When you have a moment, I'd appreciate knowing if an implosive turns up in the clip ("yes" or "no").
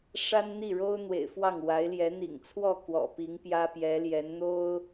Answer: no